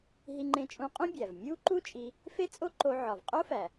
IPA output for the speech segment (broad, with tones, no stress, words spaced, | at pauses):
ɦi˧ŋ͡ǃẽ˧t͡ʃʼũ˧qʼũ˥ bʲæ˩v mʲuː˥ǃu˥t͡ʃʼi˧ | fe˥t͡sʼo˥ǃo˧ ʕɒ˩v qʼo˥fæ˩